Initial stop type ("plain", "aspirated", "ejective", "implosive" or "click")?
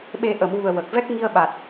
implosive